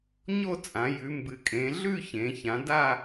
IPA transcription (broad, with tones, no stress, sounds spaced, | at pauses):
ɲ o˥˧ t͡sʼ ã˩˧ j ʉ˩˧ m b ɨ˩˧ kʼ ẽ˩˧ ɮ ʉ˥˧ ç ẽ˩˧ ç ã˩˧ d a˥˧